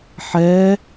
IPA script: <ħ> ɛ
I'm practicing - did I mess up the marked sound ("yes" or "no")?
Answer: no